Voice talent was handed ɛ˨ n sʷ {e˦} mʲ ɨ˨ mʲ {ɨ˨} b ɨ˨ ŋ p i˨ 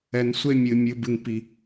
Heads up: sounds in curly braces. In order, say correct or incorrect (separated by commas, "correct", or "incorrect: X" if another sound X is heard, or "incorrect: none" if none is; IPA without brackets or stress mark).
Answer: correct, correct